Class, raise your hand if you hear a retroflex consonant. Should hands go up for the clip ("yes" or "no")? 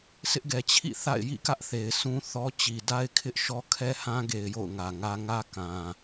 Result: no